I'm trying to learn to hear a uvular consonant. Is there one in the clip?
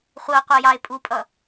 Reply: yes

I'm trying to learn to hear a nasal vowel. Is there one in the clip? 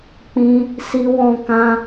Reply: yes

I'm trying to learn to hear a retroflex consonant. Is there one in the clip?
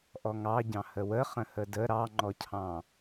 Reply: no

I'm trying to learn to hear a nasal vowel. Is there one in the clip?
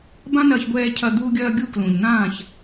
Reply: yes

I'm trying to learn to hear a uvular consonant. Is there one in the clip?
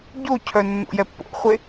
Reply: yes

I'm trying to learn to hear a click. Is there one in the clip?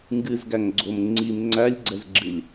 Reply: yes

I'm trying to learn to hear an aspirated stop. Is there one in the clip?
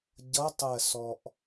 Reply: no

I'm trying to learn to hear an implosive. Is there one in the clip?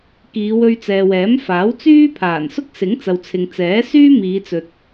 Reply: no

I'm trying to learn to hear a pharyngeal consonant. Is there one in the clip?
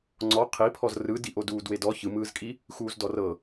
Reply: no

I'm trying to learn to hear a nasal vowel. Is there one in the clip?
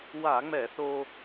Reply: no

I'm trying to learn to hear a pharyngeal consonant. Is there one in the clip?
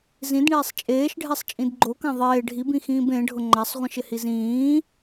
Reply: no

